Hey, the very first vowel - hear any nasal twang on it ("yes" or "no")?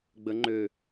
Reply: no